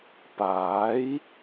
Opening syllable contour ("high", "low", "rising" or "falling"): rising